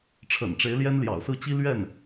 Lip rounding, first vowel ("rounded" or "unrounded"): unrounded